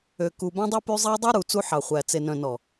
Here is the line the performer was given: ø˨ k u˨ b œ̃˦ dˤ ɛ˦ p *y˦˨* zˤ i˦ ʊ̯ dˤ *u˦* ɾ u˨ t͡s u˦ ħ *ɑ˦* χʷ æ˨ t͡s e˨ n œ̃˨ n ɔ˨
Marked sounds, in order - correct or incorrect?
incorrect, correct, incorrect

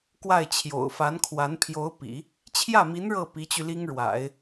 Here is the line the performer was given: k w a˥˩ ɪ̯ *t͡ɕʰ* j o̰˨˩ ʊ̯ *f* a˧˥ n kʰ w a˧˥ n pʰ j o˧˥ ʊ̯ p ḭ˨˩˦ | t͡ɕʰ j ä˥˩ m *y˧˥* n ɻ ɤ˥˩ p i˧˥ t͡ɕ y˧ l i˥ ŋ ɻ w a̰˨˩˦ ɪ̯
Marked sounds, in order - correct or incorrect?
correct, correct, incorrect

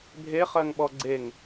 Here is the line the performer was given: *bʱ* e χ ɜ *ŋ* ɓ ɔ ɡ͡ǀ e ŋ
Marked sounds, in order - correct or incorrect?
correct, correct

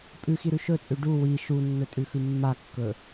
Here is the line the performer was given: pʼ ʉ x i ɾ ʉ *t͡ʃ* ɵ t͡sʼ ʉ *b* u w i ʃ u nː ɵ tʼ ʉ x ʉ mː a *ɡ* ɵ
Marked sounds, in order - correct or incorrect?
incorrect, incorrect, incorrect

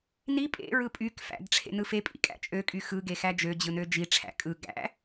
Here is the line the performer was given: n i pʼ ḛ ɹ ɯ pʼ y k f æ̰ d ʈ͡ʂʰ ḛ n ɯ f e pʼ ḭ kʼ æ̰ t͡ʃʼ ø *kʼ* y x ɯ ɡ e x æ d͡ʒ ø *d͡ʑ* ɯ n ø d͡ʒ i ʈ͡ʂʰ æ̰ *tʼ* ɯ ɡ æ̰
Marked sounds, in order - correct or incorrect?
correct, correct, incorrect

